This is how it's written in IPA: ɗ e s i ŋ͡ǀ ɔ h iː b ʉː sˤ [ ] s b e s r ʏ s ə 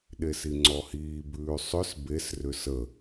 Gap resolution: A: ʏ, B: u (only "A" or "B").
A